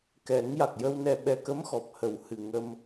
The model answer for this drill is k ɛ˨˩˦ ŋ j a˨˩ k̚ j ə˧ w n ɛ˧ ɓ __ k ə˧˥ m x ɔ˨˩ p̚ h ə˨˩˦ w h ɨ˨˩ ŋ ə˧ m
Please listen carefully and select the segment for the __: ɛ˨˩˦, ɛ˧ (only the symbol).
ɛ˧